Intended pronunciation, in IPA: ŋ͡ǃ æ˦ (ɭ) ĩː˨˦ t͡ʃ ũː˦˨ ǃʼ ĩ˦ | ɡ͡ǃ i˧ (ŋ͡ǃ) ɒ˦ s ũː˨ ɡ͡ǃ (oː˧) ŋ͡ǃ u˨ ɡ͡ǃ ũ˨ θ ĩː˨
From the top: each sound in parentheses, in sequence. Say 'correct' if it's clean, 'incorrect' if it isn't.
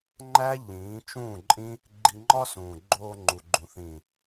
incorrect: ʎ, correct, correct

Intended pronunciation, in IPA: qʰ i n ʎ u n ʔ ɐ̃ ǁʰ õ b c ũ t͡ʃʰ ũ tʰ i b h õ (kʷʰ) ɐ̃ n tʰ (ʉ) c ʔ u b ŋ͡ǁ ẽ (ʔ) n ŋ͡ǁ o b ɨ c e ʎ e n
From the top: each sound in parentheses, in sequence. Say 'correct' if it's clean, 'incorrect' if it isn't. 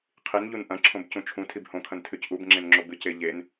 incorrect: kʰ, correct, incorrect: none

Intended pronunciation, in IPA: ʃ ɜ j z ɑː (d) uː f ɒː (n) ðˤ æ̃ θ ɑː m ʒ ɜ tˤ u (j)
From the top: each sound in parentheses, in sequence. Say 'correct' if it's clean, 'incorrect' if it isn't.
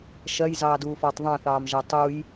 correct, incorrect: tˤ, correct

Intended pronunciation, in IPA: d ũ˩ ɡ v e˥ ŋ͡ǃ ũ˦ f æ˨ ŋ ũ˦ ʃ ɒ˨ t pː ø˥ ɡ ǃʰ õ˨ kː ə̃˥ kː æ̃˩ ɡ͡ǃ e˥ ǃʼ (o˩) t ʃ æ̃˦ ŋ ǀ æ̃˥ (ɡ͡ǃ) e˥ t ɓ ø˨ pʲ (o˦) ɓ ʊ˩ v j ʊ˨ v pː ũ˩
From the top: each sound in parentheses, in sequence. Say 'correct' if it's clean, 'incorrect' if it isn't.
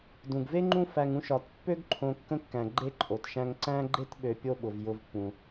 correct, correct, correct

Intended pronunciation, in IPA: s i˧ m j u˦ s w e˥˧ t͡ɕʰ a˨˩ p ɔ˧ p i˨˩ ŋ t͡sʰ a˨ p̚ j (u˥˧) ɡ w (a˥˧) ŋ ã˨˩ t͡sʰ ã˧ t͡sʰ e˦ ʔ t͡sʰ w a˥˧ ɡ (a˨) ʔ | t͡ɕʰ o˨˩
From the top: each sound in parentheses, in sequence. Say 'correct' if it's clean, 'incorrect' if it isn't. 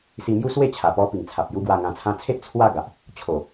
incorrect: u˦, incorrect: a˧, correct

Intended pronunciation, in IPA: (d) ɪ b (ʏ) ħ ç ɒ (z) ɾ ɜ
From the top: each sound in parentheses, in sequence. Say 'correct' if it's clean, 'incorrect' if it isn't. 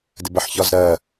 correct, incorrect: ə, correct

